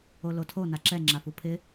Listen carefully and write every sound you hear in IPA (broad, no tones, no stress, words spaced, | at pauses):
olotʰo naǁɛ ŋ͡ǁafupʰɪ